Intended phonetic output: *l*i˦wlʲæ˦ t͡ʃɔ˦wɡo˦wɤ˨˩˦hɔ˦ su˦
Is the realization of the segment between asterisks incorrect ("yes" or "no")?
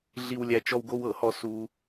yes